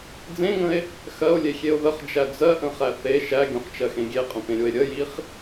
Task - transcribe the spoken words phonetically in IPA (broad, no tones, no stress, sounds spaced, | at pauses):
d͡z ẽ ŋ ə̃ e̯ | x ɜ o̯ lʲ e xʲ e o̯ ð ə χ d͡ʒ æ d͡z ɜ ʔ ə̃ χ æ θ e ʃ æ ɡʲ õ χ t͡ʃ ɜ x ẽ ɡʲ e qʼ ə̃ p ẽ ɾʲ o e̯ ɾʲ ə j i χ